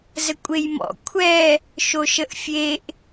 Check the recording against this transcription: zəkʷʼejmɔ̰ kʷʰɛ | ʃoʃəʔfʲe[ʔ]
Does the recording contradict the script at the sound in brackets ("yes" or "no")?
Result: no